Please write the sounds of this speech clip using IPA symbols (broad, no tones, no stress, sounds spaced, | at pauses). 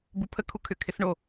b u pʰ ə kʰ u kʰ ʏ kʰ ɪ s ɳ o